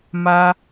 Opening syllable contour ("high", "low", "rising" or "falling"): high